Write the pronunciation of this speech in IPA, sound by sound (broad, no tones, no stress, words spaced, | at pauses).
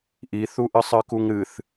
ʔiθuʔɨ sˤɨkuŋɾɨθ